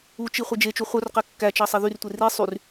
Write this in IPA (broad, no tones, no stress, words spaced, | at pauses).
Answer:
ut͡ʃi χʷed͡ʒet͡ʃu χʷœrqɛ kːæt͡ʃɑ sˤeðyrtʷe ri sˤyr